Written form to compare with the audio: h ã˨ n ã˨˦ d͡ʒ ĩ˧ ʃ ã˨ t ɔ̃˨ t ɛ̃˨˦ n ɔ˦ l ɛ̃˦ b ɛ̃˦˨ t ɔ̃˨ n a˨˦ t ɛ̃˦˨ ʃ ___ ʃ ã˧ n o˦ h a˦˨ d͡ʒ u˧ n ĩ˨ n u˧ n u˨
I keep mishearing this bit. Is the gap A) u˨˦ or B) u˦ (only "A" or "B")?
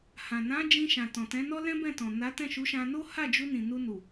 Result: A